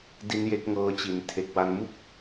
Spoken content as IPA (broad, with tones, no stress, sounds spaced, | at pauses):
d i˦˥ n j e˦˥ k̚ ŋ ɤː˧ t͡ɕ i˩˦ n tʰ e˨˩ k̚ w a˧ n m u˥˩ k̚